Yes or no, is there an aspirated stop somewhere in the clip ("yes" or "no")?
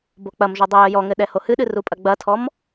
yes